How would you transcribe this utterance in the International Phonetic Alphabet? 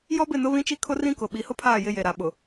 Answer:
jɔ˦bɪ˦˨nʊ˦ βĩ˦t͡ʃi˦kʰʊ˦ rĩ˦kʊ˨ ɓi˨˦hʊ˦pʰaː˦˨ jɪ˦je˨ ɾa˨ɓʊ˨

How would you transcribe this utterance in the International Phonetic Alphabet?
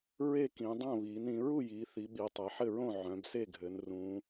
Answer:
ɹe˥˨kĩ˩˧dˤõ˥˨ βiː˩˧nĩ˩˧ ɹu˥˨jiː˩˧ θi˩˧ɓi˩˧ tˤe˩˧ħɘ˥˨ɹõ˥˨ ʕœ̃˩˧bse˥˨ɡʱɘ˩˧n rũ˩˧

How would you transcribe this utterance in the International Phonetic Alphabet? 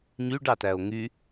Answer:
ɲyɖɑtæo̯ ŋy

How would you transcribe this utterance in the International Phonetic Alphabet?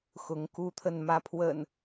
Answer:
xʊ˨˦ŋku˦t̪ʰə˥˨n mä˨˦pʰwə̰˨˩n

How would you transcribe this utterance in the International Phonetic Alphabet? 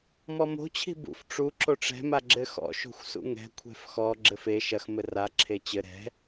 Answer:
mɔmo̤ t͡ɕʰi̤bṵf ʈ͡ʂu ǁoʈ͡ʂɛ̤ maɡ͡ǁɘxɔ̰ ʃo̤xʷsṵŋɛ̤ kʷʰɛ̤fxɔ ɡ͡ǁɘfe ʃɐx mɘra ǁʰet͡ɕɘ ɾɛ̤

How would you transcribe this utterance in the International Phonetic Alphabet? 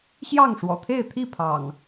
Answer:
ɕjɑ˥˨ŋʂwɔ̰˨˩t̪ʰe˥˨ɪ̯t̪ʰi˥˨ pʰɑ̰˨˩ŋ

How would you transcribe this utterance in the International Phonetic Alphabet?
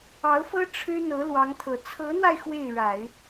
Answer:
ɑ˧˥ʊ̯fɤ˥ ʈ͡ʂʰɻ̩˥n̪ɤ˧˥ lwɑ˧˥ŋt̪ʰɤ˨˩ t͡sʰɤ˧˥n̪wa˧ɪ̯ xwe˥˩ɪ̯ɻa˨˩˦ɪ̯

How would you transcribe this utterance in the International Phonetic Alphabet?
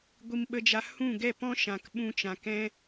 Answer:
ɡʷi˧mɓə˧d͡ʒa˧ hũ˦˨ɡɛ˦˨pɔ̃˦ʃã˨k ɓũ˧t͡ʃã˨kɛ̃˦

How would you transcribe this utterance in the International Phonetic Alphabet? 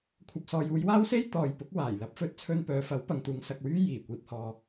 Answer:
kʷʰɐ˨p̚sɔː˨j uː˨˧jwaː˥wse˥j t̪ɔː˨jpʊ˨˥k̚ waː˨˩j lɐ˨˥p̚fɵ˨˥t̚t͡sʰɵ˧npœː˨ fɐ˨˥w pɐ˨ŋt̪uː˨˧ŋ sɐ˨k̚wyː˥ jiː˨˩ kʷiː˧p̚hɔː˧

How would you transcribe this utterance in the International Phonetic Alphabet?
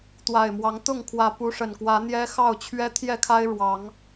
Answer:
t̪wa˨˩ɪ̯mwɑ˨˦ŋt̪ʊ˥˨ŋkʰwä˨˦ pu˨˦ʂə˨˩nkwä˨˦ n̪jɛ˦xɑ˥˨ʊ̯ t͡ɕʰɥɛ˦ t̪ʰjɛ˥˨kʰa˦ɪ̯ ɻwɑ˨˦ŋ

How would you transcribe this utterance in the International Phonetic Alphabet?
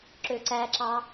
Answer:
ǁøǀæǁɑ

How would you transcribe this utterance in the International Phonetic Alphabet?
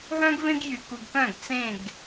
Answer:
ɦœ̃˦ɡvẽ˦ɡjy˨ ku˨ɡkœ̃˦˨ɡ t͡sẽ˦˨ɡ

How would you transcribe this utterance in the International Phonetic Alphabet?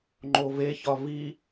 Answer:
ŋ͡ǃove çɒvi

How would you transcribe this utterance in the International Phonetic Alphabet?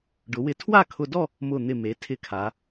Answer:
ɖʊ˩˧wɪ˧˩ tʰwa˥˧kʰʊ˧dɔ˥˧ | mʊ˧˩n̪ɪ˧˩me˩˧ tʰɪ˧kʰa˩˧

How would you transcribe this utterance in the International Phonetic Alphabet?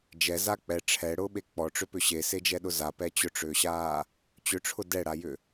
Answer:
d͡ʒɛza k͡pɛ ʈ͡ʂʰɛɽʊːɓe k͡pɔʈ͡ʂʏpʏ ɕesed͡ʒɛɗʊ zapɛ t͡ɕʊʈ͡ʂʏːɕaː | t͡ɕʏʈ͡ʂʰʊ dɛɽajʏ

